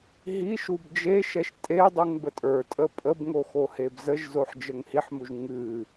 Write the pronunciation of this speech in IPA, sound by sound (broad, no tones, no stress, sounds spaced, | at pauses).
ɦ i ʃ u b d͡ʒ e ʃ ɛ ʃ tʼ e dˤ u ŋ b ə tʼ ə˞ tʼ əː pʼ ə b ŋ o x o h e b z ə ʒ z o ħ d͡ʒ ə ŋ h i ħ m u ʒ ŋ ɨː